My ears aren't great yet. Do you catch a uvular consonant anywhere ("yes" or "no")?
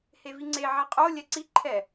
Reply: yes